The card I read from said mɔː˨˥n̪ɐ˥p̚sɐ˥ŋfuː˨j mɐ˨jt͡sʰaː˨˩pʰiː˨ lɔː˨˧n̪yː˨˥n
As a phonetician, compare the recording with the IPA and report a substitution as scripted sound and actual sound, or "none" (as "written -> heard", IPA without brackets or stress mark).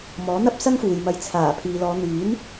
none